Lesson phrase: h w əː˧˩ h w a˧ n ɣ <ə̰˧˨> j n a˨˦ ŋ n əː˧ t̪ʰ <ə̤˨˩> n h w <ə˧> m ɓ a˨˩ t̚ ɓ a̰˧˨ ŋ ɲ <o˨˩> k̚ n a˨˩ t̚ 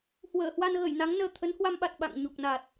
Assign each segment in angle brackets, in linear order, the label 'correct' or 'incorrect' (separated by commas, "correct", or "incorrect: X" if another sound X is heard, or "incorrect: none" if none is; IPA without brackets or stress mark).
incorrect: ə˧˩, incorrect: ə˨˦, incorrect: a˧, correct